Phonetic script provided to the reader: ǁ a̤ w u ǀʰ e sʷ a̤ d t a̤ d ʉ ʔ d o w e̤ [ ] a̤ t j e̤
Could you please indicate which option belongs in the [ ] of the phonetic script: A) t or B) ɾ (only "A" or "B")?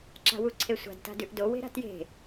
B